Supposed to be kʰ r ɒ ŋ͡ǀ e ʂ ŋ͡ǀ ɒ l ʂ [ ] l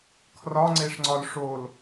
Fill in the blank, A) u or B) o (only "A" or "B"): B